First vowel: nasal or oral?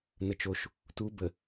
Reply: oral